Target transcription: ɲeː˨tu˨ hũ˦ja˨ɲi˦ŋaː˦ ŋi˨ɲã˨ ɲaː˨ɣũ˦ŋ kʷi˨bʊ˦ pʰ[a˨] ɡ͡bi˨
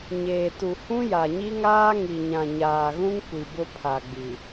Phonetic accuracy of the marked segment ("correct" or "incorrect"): correct